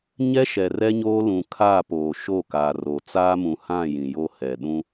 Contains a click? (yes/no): no